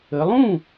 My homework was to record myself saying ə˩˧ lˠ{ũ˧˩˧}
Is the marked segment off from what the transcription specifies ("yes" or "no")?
yes